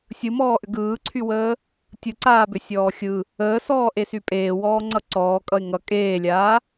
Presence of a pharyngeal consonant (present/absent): absent